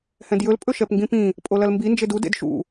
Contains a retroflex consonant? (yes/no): no